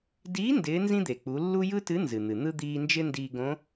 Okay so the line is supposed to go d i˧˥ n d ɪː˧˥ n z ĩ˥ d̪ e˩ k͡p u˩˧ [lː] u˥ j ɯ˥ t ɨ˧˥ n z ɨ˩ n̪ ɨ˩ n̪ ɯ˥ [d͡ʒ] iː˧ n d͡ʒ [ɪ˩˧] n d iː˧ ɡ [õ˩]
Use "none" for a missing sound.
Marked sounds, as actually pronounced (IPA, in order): lː, d̪, ɪ˥, õ˧˥

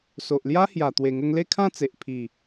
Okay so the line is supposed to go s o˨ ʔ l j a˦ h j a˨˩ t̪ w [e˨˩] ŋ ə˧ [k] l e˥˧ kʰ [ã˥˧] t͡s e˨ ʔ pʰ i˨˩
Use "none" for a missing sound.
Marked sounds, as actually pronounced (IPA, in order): e˨˩, ŋ, ã˥˧

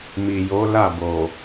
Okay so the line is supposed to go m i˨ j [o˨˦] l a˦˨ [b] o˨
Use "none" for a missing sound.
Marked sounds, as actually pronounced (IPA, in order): o˨˦, b

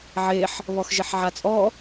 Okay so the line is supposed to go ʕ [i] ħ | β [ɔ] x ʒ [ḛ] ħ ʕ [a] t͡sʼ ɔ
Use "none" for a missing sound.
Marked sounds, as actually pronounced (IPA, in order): e, ɔ, e, a

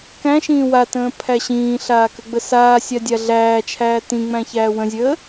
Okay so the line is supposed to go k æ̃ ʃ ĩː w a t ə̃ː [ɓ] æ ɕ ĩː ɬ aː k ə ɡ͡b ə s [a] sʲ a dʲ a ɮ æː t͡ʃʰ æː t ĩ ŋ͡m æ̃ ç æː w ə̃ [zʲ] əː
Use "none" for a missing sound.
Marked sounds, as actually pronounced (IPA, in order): pʰ, aː, zʲ

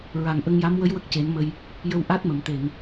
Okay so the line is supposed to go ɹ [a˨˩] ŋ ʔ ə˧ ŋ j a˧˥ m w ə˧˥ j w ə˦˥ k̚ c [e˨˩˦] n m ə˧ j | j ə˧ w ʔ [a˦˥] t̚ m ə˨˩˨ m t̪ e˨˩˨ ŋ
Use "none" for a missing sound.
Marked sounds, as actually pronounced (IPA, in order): a˨˩, e˨˩˦, a˦˥

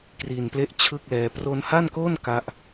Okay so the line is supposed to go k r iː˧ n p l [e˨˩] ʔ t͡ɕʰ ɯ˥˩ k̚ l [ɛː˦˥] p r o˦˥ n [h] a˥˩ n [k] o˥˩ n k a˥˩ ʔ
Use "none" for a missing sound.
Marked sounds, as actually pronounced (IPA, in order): e˥˩, ɛː˦˥, h, k

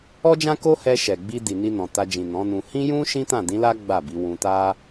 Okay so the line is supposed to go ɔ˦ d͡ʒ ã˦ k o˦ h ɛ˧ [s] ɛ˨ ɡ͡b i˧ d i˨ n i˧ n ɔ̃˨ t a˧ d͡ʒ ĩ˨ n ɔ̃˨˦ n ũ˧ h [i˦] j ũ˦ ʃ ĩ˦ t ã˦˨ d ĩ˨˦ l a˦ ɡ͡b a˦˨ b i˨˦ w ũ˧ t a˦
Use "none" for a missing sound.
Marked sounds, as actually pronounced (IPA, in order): ʃ, ĩ˦

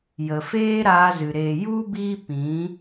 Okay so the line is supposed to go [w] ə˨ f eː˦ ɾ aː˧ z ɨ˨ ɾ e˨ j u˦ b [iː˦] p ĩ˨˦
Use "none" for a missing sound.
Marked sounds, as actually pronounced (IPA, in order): j, iː˦

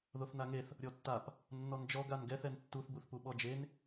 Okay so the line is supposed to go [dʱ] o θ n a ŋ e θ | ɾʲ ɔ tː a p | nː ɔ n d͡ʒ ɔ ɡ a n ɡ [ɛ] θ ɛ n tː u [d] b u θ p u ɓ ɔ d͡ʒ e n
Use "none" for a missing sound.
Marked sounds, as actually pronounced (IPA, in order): ð, ɛ, θ

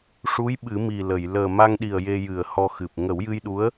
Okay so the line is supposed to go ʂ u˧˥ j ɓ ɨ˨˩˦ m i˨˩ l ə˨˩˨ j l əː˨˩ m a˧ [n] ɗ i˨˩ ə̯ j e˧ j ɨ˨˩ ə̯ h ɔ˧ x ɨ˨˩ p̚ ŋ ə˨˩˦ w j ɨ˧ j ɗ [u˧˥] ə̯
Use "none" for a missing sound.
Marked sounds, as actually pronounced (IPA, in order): ŋ, u˧˥

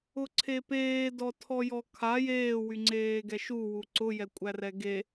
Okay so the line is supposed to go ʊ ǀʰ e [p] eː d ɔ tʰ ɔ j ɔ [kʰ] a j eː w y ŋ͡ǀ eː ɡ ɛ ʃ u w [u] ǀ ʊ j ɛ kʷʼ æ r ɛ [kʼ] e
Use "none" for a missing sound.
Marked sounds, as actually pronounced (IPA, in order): p, kʰ, u, ɡ

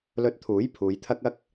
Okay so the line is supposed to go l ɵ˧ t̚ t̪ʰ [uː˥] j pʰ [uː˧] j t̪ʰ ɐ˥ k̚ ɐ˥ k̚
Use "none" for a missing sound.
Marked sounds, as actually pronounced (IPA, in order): uː˨˥, uː˨˧

